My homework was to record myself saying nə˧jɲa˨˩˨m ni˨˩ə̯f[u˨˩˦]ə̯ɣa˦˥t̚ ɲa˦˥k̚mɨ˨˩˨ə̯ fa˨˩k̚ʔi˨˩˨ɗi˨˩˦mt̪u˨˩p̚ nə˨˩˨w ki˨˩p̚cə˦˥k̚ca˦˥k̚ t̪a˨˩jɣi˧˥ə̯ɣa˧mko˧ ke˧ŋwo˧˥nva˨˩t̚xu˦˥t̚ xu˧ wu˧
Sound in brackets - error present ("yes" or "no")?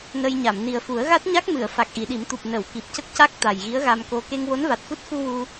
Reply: no